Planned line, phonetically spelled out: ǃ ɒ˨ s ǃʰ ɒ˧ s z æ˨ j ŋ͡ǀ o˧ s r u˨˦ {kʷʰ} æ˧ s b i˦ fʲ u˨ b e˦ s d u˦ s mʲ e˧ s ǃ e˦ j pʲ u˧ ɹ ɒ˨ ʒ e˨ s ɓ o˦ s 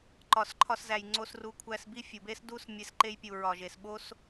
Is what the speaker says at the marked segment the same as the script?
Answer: yes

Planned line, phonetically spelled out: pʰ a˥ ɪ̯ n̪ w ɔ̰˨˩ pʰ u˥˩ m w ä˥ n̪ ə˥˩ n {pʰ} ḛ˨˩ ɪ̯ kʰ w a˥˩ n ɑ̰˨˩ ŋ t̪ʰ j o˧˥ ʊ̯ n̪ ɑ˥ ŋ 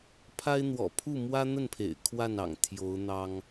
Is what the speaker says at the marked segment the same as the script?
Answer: yes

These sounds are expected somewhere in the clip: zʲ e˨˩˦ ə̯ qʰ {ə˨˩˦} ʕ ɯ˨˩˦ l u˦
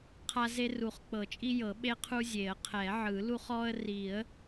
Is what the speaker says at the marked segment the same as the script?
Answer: no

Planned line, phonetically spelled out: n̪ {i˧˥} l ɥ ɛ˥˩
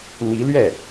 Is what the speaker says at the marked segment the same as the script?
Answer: yes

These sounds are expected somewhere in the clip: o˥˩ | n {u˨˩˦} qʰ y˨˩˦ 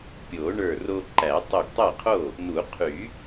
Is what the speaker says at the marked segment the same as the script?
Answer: yes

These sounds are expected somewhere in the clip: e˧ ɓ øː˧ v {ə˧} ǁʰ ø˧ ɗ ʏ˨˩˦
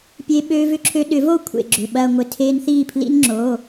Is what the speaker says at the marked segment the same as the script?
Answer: no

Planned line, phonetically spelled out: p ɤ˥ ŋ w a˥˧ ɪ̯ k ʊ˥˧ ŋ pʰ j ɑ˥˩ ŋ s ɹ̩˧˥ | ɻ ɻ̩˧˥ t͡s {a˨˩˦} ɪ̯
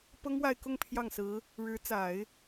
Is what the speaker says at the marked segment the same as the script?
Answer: yes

